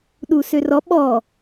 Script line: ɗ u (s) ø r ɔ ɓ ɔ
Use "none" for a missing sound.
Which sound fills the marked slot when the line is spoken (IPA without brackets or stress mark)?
s